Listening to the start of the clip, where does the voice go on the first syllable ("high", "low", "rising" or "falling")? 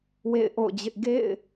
falling